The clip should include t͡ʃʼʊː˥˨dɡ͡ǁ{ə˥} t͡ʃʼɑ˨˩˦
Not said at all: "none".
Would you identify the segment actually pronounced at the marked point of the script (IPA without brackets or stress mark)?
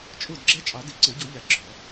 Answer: ɛ˥